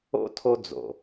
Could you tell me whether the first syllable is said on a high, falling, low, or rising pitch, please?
high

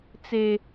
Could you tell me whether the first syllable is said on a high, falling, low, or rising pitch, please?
high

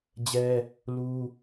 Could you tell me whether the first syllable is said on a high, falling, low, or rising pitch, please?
high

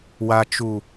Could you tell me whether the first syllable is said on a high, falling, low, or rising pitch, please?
low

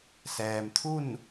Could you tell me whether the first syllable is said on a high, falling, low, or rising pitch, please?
low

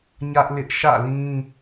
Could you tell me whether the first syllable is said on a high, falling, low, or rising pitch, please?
high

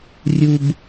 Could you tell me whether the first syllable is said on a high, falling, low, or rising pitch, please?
low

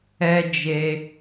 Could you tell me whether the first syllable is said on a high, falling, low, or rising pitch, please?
high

